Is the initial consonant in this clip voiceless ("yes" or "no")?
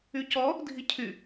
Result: yes